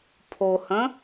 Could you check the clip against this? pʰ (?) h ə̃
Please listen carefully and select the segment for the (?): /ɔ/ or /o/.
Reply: o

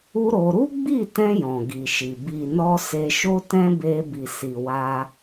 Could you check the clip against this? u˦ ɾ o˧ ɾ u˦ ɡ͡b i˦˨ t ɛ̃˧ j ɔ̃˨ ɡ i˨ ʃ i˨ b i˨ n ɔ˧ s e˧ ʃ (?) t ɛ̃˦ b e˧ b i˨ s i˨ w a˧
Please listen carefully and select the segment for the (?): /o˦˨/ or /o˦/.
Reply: o˦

